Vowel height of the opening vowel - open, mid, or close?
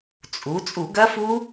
close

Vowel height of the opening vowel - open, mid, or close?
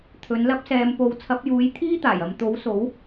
mid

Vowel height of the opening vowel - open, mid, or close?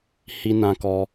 close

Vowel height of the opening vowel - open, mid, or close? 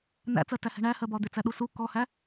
open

